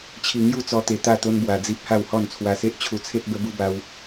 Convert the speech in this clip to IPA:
t͡ɕʰ i˧ ŋ j u˥˧ t͡s ɔ˧ t̪ e˧ t̪ a˥˧ t̪ o˦ n b w a˧ d͡z i˦ p̚ h a˥˧ w h ɔ˥˧ n t͡sʰ w a˧ s e˦ ʔ t͡ɕʰ u˧ t͡sʰ e˦ t̚ b ə˦ b u˦ b a˦ w

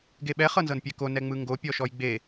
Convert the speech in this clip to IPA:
ɡ e ɓ ɛ χ ɤ n z ɤ n pʲ ɛ k o n ɛ ŋ͡m ɯ ŋ ɡ o pʲ ɔ ʃ ɔ j ɡ͡b e

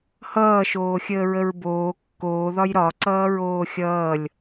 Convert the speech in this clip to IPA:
h ʌː ʃ oː xʲ əː ɹ ə ɹ b oː kː oː ð ɒ j ɾ ɒ ǀ ʌː ɹ oː xʲ ʌː lʲ

